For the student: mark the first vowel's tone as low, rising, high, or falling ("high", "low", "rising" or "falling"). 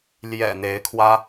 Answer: low